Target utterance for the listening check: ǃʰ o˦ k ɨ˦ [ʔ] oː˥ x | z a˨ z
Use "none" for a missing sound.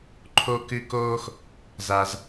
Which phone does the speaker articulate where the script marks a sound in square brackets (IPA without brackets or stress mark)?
k